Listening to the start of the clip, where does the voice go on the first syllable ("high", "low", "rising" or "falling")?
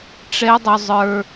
high